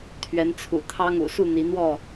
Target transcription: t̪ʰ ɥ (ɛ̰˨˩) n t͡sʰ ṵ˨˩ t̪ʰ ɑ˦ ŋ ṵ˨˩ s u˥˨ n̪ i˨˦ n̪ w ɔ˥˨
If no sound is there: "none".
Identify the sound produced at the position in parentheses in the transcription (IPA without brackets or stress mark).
ɛ˨˦